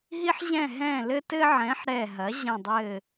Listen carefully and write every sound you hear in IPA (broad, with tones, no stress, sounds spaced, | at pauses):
ɦ i˧ ħ ʑ ɛ̃˧˩ ɦ ɛ̃˧˩ l ɘ˧ t ɘ˧ ʕ ɛ̃˩˥ ħ ɾ ɛ˧˩ ɦ ɐ˩˥ ʑ ɐ̃˧˩ dˤ ɘ˧˩